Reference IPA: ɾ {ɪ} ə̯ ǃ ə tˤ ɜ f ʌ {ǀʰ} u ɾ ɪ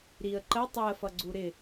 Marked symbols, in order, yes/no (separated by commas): no, no